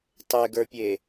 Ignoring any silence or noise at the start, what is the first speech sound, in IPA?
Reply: tˤ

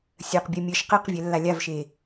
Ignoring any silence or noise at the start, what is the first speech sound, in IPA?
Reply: sʲ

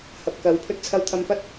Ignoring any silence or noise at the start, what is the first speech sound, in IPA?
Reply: h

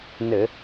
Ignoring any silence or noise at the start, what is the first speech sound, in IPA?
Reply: n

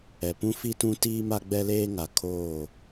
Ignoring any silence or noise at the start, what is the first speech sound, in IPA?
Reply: ɛ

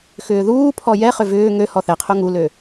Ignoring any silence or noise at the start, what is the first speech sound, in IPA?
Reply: x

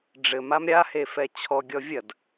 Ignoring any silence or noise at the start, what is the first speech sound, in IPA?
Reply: ɖ͡ʐ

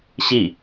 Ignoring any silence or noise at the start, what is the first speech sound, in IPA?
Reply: ɕ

